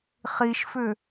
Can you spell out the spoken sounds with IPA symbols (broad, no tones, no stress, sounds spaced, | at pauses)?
χ i ʃ f ʏ